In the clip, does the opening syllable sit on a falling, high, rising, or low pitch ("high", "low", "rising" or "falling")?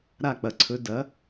falling